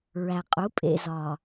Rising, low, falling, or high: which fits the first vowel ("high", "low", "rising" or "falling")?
low